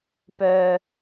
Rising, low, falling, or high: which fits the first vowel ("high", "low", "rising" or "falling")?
low